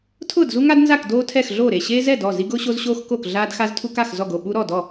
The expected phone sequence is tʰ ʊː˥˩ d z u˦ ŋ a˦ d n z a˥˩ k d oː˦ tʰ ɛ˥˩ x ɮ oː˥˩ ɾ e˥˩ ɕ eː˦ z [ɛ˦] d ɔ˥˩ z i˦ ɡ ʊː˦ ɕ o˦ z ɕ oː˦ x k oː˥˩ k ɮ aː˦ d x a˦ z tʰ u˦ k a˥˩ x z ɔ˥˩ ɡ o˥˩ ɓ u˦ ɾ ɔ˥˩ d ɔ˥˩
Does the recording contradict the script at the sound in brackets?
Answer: yes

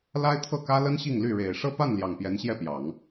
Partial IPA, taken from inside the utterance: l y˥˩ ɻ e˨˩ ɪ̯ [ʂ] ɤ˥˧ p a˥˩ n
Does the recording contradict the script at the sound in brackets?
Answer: no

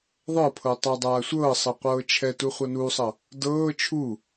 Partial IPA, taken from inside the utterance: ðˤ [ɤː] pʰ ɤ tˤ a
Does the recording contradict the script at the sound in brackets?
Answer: yes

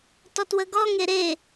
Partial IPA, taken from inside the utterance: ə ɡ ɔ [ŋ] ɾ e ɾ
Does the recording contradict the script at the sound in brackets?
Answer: no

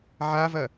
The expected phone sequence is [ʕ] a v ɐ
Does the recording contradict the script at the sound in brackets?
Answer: no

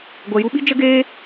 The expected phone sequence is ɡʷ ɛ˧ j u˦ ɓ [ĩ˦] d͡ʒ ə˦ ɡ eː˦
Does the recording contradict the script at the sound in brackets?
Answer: yes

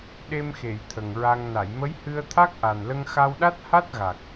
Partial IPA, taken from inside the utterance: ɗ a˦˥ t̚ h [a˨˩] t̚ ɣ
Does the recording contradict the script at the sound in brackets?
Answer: yes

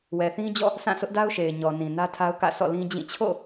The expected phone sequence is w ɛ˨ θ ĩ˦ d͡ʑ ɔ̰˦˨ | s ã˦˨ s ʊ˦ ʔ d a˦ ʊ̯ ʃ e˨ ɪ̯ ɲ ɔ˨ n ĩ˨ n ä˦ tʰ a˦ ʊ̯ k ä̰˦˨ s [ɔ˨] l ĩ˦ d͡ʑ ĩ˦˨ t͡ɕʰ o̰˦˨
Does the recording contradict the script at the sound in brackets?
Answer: yes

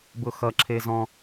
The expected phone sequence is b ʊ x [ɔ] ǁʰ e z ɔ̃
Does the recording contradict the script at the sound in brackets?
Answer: yes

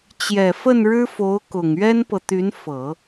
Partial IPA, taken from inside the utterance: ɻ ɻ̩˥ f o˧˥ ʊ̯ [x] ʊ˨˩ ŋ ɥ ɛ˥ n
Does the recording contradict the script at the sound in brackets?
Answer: yes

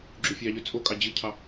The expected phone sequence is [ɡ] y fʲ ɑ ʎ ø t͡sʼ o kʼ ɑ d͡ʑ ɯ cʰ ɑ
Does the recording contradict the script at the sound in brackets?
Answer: yes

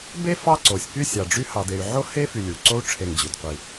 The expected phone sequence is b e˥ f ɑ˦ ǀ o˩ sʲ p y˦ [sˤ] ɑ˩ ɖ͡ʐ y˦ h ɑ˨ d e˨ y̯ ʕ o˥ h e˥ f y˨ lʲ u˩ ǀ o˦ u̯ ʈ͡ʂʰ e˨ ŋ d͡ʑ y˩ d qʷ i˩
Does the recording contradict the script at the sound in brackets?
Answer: yes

